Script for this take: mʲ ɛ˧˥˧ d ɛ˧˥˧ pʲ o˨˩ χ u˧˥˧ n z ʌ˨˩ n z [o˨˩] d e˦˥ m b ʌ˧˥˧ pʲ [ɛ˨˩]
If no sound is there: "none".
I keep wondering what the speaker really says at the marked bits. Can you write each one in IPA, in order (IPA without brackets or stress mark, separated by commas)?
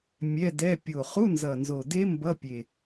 o˨˩, e˨˩